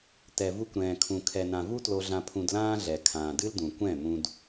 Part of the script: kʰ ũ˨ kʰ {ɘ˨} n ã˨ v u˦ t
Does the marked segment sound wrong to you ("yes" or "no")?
yes